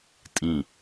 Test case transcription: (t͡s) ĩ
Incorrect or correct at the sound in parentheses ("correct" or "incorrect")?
incorrect